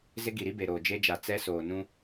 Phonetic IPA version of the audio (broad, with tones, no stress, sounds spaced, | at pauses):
z ɪ˦ ɡ i˨ ɾ i˦ b e˨ ɾ oː˨ d͡ʒ e˦ d͡ʒ a˨ t͡s ɛ˦ s oː˨ n ũ˦